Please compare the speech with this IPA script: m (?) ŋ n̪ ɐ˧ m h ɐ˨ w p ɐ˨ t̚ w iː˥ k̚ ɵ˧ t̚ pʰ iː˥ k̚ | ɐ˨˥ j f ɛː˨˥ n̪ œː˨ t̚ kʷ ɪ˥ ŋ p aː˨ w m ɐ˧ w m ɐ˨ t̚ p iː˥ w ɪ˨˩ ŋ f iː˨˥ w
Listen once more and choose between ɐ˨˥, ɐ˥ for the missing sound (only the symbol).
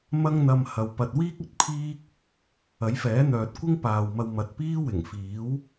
ɐ˥